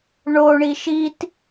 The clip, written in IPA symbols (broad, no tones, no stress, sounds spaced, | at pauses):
ɳ o ɳ i ʃ i t